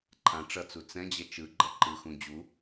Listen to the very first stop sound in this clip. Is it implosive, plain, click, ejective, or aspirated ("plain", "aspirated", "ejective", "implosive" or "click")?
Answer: click